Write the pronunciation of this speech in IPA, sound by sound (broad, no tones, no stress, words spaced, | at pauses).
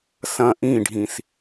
sɐ̃ ʔĩɖʱĩs